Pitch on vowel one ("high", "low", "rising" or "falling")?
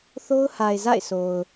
high